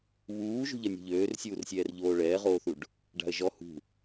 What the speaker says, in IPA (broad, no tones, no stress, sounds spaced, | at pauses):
β uː ʒ ṳ ʎ ɐ nʲ ɔ̤ ʎ øː r sʲ uː r sʲ ɛː r ʎ oː ɭ ɛː ʁ oː θ u ɖ | ɖ a̤ ə̯ ʒ ɔ h ṳ